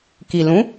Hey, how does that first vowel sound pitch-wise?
low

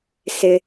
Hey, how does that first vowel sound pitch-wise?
high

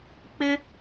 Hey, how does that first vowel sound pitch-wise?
high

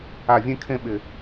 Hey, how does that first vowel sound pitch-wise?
falling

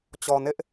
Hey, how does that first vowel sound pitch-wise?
low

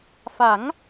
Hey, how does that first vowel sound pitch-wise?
rising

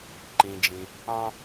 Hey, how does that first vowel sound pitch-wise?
low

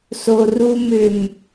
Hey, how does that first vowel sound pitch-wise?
low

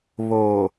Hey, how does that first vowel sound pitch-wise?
low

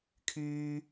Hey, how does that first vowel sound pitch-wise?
high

